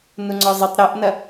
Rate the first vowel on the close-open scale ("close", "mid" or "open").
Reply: close